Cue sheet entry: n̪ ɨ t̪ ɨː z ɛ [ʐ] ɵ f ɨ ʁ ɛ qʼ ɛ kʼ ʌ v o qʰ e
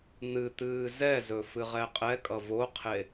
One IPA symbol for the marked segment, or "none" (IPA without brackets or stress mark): z